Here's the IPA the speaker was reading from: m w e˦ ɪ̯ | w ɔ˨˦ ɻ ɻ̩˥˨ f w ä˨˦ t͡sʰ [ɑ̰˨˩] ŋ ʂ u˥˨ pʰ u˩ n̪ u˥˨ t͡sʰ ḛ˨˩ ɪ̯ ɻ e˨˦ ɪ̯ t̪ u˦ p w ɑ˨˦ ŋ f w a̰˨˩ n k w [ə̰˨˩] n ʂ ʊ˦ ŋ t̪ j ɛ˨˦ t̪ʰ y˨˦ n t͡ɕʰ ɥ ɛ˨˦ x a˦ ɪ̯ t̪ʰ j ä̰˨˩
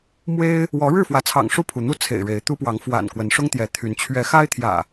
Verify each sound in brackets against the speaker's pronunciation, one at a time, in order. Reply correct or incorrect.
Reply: correct, incorrect: ə˨˦

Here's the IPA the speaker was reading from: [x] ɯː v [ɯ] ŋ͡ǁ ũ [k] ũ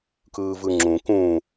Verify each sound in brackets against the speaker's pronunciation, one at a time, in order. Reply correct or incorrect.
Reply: incorrect: k, correct, correct

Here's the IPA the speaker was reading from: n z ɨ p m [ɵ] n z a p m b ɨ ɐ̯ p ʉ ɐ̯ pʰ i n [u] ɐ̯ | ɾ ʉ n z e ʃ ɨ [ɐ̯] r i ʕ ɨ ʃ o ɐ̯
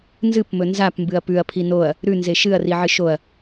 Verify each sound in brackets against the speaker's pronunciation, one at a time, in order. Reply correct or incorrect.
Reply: correct, incorrect: o, correct

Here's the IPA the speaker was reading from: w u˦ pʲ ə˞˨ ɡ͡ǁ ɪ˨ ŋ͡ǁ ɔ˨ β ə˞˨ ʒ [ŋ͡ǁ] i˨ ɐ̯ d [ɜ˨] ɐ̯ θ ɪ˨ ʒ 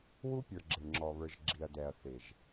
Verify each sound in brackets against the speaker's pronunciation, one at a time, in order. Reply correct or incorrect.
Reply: incorrect: ɡ͡ǁ, incorrect: ɛ˨

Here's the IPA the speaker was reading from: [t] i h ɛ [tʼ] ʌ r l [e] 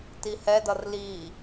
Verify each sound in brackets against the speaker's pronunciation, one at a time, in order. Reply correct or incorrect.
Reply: correct, incorrect: d, incorrect: i

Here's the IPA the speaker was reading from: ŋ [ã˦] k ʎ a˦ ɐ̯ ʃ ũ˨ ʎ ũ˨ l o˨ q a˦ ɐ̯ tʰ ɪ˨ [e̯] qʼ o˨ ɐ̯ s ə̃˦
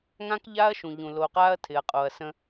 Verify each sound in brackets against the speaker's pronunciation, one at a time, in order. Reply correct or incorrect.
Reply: correct, incorrect: ɐ̯

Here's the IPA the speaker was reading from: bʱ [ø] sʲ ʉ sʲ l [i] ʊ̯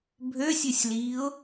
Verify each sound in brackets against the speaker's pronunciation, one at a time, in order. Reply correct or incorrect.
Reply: correct, incorrect: iː

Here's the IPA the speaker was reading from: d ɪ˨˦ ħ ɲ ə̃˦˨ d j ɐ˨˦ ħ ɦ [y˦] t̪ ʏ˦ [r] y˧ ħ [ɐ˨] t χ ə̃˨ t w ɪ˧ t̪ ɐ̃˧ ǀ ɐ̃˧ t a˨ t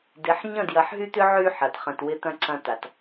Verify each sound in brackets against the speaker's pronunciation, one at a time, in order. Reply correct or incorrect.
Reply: correct, incorrect: ʕ, correct

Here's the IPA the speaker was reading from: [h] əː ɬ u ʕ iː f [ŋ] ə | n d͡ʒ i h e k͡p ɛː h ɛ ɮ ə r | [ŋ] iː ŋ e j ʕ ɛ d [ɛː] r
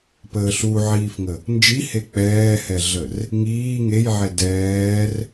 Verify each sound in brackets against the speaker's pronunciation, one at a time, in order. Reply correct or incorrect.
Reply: incorrect: p, correct, correct, correct

